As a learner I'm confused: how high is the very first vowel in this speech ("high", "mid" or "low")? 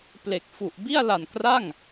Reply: mid